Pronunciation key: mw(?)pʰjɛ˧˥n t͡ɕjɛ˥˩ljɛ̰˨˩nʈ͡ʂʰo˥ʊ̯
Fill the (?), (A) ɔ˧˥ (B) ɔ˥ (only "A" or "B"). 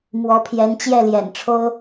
A